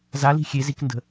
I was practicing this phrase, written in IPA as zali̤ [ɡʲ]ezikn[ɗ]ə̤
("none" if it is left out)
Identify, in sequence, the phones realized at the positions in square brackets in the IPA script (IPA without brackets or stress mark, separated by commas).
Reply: xʲ, d